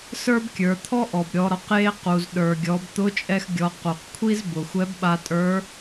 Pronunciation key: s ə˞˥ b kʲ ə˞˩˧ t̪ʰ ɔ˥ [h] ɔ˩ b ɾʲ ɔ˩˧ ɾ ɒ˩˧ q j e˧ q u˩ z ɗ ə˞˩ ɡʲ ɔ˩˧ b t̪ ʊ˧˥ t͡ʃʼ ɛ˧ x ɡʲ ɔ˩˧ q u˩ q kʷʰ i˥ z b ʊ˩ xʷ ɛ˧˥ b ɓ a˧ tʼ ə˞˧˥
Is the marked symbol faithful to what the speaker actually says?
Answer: no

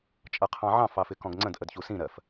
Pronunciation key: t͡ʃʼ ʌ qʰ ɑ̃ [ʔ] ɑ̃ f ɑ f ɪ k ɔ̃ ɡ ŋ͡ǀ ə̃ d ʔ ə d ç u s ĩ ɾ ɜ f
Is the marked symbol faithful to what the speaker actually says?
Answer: no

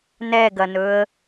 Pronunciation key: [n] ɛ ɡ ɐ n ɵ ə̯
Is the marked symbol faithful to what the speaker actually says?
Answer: yes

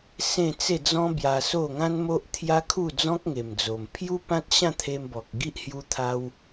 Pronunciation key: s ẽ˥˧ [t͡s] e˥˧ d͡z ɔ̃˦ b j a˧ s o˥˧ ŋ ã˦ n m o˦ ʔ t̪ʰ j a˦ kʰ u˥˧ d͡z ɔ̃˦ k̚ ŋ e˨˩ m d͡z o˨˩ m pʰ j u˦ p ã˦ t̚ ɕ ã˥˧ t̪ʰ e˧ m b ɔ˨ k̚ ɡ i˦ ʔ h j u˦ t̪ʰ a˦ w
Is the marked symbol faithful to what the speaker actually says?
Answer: yes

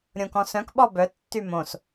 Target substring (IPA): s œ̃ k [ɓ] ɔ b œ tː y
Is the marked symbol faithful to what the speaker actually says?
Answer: yes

